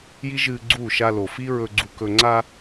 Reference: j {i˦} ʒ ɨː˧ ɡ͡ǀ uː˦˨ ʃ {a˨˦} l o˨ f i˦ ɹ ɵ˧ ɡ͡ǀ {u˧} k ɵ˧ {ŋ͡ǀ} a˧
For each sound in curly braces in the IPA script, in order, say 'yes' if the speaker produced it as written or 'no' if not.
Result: yes, no, yes, yes

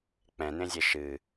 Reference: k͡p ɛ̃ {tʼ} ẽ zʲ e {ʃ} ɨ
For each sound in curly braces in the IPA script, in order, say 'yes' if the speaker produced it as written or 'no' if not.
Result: no, yes

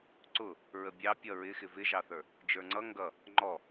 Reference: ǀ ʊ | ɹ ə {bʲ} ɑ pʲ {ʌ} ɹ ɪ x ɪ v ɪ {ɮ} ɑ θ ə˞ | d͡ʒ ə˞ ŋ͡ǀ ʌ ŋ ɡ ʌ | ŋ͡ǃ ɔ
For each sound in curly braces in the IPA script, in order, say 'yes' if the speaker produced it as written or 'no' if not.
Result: yes, yes, no

